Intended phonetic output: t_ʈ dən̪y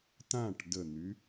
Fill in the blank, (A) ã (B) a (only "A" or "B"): A